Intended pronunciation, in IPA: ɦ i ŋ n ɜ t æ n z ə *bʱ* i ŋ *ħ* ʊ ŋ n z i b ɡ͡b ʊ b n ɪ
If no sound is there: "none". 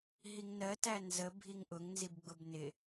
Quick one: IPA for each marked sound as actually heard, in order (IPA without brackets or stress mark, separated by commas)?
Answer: bʱ, ʔ